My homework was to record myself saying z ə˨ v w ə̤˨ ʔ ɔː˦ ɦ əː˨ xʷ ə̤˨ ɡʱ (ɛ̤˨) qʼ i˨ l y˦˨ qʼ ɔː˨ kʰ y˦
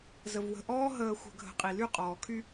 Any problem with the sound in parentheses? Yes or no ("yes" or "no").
yes